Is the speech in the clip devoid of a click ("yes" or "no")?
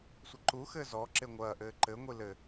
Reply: no